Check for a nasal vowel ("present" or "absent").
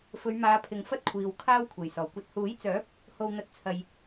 absent